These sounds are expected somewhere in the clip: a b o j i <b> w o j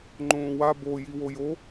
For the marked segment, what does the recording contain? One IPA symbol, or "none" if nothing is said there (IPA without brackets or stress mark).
none